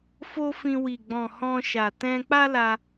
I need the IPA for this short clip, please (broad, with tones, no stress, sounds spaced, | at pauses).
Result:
f o˦ f ĩ˧ w i˨ ɡ͡b ɔ̃˨ h ɔ̃˧ ʃ a˨ t ɛ̃˧ k͡p a˦ l a˧